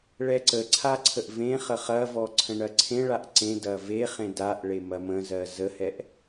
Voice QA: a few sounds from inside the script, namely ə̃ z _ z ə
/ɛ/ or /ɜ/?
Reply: ɜ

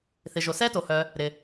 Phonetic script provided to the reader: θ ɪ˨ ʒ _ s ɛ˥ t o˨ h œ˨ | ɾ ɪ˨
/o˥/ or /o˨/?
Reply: o˨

